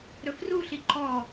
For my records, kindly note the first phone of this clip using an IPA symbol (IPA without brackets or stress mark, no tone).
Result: ɾ